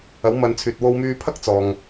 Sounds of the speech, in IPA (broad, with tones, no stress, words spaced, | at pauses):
ɐ˨˥wmɐ˨˧nt͡sʰyː˨t̚ wo˧wmyː˧pʰɐ˥k̚ t͡sɔː˨ŋ